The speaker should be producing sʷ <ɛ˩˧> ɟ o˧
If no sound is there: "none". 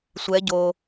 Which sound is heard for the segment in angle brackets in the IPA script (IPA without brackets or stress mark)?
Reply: ɛ˧˥